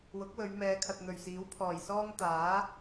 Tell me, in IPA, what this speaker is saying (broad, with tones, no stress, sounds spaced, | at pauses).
w ʊ˨˥ k̚ w ɵ˨˧ ɥ m ɛː˨˧ kʰ ɐ˨ t̚ n̪ ɵ˨˩ ɥ s iː˨˥ w pʰ ɔː˨˩ j s ɔː˥ ŋ t̪ aː˨˥